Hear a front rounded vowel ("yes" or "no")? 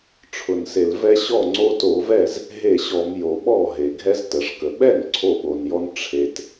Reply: no